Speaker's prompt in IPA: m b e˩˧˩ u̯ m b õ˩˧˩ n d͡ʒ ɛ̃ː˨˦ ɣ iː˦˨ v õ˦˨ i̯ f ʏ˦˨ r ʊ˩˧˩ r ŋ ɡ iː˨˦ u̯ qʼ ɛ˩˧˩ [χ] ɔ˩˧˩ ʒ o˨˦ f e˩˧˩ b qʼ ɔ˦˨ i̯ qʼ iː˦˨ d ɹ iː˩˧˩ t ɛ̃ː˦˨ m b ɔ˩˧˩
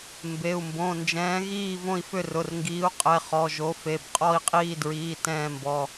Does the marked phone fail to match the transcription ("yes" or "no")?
no